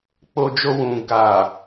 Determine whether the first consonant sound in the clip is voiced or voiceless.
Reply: voiceless